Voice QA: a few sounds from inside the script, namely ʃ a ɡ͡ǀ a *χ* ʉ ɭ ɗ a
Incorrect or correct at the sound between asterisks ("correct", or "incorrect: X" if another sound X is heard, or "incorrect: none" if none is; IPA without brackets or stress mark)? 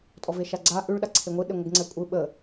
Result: incorrect: ʔ